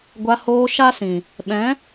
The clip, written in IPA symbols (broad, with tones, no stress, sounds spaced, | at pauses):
ɡʷ a˧ h oː˧ ʃ a˦ s ĩ˨ | ɓ ɛ̃˨˦